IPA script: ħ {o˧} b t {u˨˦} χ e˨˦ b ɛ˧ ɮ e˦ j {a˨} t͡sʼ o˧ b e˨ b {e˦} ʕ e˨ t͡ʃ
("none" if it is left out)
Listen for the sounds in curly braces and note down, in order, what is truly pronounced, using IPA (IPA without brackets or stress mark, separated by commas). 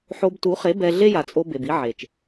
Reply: o˧, u˨˦, a˨, i˦